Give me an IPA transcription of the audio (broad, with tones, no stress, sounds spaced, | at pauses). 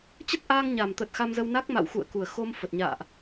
t͡ɕ ə˦˥ t̚ ʔ aː˧ ŋ ɲ a˨˩ m t̪ ə˨˩ t̚ x a˧ m z ə˧ w n a˦˥ k̚ m a̰˧˨ w x ṵ˧˨ ə̯ k u˨˩ ə̯ x o˧ m f ə˨˩ t̚ ɲ a̰ː˧˨ ʔ